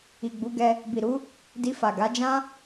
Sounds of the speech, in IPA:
i˨ɡ͡bu˨˦ɡɛ˧ | bi˨ɾu˨˦ | di˧fa˨ ɡa˨˦d͡ʒã˦

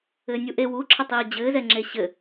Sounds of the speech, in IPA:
ɘːnʲuʔe wuǁʰətˤiː d͡ʑɘːzɛ ŋ͡ǁeɕɘ

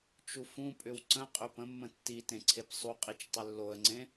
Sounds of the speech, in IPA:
t͡ʃufũpʼʏw ǀə̃qʼʏ pə̃mːə̃ tːitẽ ǀʰepsˤuqʼit͡ʃ tˤʏlːoə̯ŋ͡ǀẽ

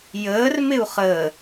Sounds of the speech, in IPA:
jəːr mɪu̯χəː

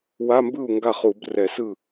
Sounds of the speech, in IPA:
wa˧˥˧mbɯ˥˩u̯ ŋɡa˥˩χu˧˩˧brɛ˧˩˧sɯ˥˩

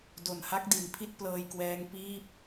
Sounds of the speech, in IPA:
do˨˩nha˦˥k̚di˩˦n pʰi˥˩t̚plɤː˧jkwɛː˦˥ŋ piː˥˩p̚

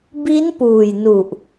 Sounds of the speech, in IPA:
bi˦˥n puː˨˩jnu˨˩ʔ

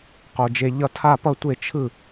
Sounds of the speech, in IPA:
qo˨˩d͡ʒe˧ ʎʌ˧tʰa˥˩pʌ˥˩ tʷe˥˩t͡ʃʰɯ˥˩

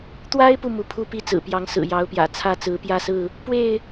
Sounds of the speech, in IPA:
t̪wa˦ɪ̯pu˨ mu˨˦pʰu˥˨ pi˦t͡sɹ̩˨˩pjɑ˨˦ŋsɹ̩˨˩ jɑ˨˦ʊ̯pjä̰˨˩ t͡sʰä˥˨t͡sɹ̩˨˦pjä˥˨sɹ̩˥˨ | pwe˥˨ɪ̯

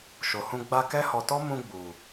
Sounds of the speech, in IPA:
ʃo˨hũ˧ ɡ͡ba˧ kɛ˦hɔ˧tɔ˦ mũ˧ɡ͡bu˨

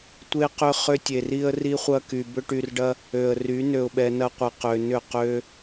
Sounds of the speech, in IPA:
tʷe˧qʏ˧ χʏ˦tʲe˨ri˦ə̯ ri˦χʷɐ˦ky˨ bʏ˧ʈy˨rɖɐ˧ | ø˨ə̯ry˨˦ nø˨ʊ̯ɓɛ˨nɐ˧ qʷi˨qø˨nʏ˦˨ qø˧

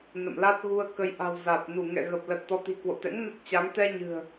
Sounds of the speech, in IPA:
nə̰˧˨mla˦˥t̚ ɣu˧ə̯kə˨˦jʔa̤˨˩w za˨˩t̚nu˧˩ ŋɛ̰˧˨ɣə˨˩p̚lə˨˩t̚ t̪ɔ˨˦t̪i̤˨˩kwo̰˧˨t̪ɛ̰˧˥ŋ nə˦˥t̚t͡ɕa˨˦ŋ t̪ɛ˧ɲɨ̤˨˩ə̯

